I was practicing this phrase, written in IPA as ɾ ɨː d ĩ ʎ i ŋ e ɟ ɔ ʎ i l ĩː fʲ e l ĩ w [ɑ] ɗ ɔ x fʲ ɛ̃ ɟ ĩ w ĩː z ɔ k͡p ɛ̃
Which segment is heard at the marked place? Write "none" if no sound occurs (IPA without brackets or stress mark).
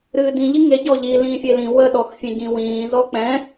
ə